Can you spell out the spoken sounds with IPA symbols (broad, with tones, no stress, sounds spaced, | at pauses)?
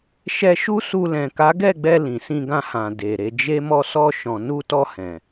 ʃ ɛ˧ ʃ u˦ s u˧ l ɛ̃˨ k a˨˦ ɡ ɛ˦˨ ɡ͡b ɛ˧ l ĩ˨ s ĩ˧ ɡ ã˧ h ã˨ d e˨ ɾ e˧ d͡ʒ e˦ m ɔ˧ s ɔ˧ ʃ ɔ̃˨ n u˧ t ɔ˧ h ɛ̃˨